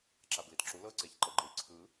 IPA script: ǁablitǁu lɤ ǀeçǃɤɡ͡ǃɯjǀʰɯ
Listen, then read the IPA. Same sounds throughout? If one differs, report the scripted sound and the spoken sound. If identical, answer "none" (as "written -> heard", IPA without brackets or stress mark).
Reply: none